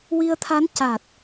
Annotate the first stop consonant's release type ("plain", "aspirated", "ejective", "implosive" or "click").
aspirated